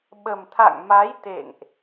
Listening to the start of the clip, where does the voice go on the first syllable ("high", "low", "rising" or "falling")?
low